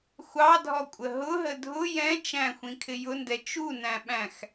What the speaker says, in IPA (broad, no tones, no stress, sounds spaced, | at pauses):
xʷ ɑ dʱ ɔ kʷʼ ə ɦ ʊ ɦ ə dʱ ʊ j ɛ̃ t͡ʃ æ̃ xʷ ĩ kʰ ɪ j ʊ n d ɛ t͡ʃ u n æ̃ ɓ æ̃ x